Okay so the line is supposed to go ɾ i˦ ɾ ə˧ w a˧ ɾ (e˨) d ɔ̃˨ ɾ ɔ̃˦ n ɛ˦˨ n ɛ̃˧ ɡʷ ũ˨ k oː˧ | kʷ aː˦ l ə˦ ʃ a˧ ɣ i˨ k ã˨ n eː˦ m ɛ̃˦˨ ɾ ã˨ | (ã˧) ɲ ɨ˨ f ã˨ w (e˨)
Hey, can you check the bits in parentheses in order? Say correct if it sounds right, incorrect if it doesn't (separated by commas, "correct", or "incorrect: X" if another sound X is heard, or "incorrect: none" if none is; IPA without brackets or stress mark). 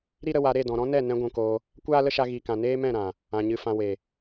incorrect: e˦˨, incorrect: ã˨, correct